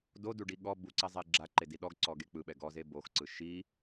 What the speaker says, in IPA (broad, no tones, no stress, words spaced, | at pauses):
doduɖi ɠɔ buǀɛzˤe ɡ͡ǁaǃedi ɗɔɡǀɔɡe k͡pɯɓɛ ɡɔze boxǀɯ ʃi